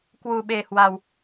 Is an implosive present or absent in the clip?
present